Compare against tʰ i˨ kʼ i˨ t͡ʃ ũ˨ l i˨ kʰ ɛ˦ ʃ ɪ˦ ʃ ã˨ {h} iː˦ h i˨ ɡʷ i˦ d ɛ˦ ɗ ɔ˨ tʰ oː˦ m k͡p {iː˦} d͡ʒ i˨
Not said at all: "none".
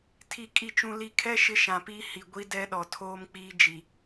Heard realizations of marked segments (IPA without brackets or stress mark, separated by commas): p, iː˦